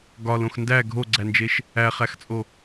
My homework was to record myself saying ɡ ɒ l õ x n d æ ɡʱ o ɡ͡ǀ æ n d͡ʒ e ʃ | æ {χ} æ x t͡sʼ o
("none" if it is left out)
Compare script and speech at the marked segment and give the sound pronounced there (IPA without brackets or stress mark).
χ